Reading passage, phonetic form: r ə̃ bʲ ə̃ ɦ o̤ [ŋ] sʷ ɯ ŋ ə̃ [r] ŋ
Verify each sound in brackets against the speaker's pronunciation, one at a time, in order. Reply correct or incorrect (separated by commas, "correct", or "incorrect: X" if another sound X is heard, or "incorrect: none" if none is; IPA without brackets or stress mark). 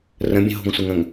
correct, incorrect: none